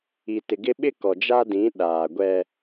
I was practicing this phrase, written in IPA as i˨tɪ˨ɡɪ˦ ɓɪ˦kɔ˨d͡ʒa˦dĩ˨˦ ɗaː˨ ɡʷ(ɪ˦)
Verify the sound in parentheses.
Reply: incorrect: ɛ˦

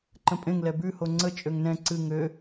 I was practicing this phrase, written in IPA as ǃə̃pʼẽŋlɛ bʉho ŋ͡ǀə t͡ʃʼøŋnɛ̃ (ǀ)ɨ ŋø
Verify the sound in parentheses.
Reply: correct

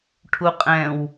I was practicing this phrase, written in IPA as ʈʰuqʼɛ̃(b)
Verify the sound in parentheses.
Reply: incorrect: w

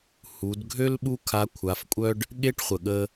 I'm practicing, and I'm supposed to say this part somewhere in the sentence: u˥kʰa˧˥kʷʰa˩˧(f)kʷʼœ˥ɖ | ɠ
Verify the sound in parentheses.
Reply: correct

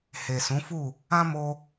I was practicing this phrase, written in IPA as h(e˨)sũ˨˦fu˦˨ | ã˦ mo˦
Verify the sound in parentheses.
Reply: correct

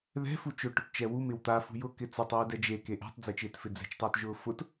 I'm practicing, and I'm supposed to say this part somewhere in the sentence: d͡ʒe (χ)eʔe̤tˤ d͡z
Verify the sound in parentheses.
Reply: incorrect: k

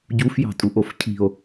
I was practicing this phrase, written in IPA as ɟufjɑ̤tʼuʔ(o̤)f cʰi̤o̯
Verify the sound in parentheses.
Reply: incorrect: o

